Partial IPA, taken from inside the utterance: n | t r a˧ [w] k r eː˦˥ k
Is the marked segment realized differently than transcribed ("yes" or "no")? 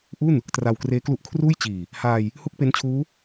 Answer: no